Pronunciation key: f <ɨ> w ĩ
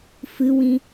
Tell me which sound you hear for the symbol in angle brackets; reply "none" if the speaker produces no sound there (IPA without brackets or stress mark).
ɨ